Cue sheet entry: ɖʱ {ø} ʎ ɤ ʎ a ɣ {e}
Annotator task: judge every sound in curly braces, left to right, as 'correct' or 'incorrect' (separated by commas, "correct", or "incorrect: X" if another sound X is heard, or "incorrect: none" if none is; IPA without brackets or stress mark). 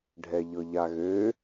incorrect: ɛ, incorrect: ø